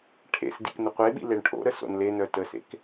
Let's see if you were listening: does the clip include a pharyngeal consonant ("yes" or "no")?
no